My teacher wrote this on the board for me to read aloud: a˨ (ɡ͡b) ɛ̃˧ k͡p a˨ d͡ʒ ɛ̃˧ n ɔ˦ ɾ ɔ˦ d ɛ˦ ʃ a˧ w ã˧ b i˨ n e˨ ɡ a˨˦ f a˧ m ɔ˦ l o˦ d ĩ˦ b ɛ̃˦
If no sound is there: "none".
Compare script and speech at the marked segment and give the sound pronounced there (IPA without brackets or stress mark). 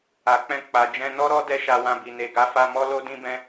k͡p